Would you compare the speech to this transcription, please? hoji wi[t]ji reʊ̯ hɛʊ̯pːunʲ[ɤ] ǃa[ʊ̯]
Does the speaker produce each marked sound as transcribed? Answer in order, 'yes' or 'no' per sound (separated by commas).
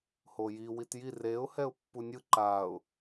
yes, no, yes